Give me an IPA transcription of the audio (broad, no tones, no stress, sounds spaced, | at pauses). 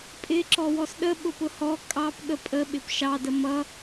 pʼ ɪ ǁ ɔ w ɔ s ɗ ə ɓ ʊ p ʊ h ɔ kʼ ɑ p ɠ ə pʼ ə ɓ ɪ p ʃ ɑ d ə m ʌ